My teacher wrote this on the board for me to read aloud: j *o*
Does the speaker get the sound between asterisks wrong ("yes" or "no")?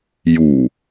yes